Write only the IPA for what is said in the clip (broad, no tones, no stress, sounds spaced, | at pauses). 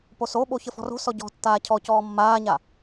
p o s o ɓ o ç ə f ɔ̤ r o̤ s ɔ ɟ ɔ̤ tː aː cʰ ɔ c ɔː mː aː ɲ a